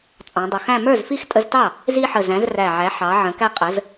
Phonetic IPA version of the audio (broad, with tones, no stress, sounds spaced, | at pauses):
t͡sʼ ɑ̃˩˧ dˤ ʊ˨˩ x æ̃˥˧ m ə˞˥˩ z f i˥˩ x tʼ ə˧ z t ɑ˥˩ | z i˧ ħ ə˨˩ z æ̃˩˧ z r æ˨˩ ʕ æ˩˧ ħ ɑ˩˧ ʕ ə̃˩˧ k æ˧ qʼ ə˩˧ z